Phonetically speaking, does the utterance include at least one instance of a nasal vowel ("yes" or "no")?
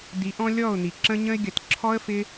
yes